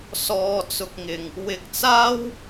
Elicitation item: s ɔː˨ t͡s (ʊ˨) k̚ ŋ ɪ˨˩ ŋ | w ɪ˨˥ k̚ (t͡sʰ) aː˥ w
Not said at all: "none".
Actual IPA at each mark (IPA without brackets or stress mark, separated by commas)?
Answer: ʊ˨, t͡s